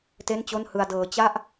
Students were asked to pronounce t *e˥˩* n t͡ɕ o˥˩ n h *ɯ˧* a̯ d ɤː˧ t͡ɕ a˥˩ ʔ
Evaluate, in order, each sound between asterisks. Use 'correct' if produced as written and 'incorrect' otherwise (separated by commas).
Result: correct, correct